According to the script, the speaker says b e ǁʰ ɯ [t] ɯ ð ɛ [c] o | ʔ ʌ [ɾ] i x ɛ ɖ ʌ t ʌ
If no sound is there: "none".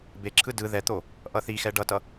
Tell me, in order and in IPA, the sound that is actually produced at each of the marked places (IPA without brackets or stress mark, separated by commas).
d, t̪, θ